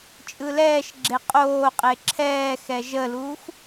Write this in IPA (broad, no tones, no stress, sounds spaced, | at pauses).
t͡ʃʼ ɯ l ɛː ʃ ɡ͡ǁ e qʼ oː qʼ e ǁʰ ɛː x ɛ ʒ ə l uː x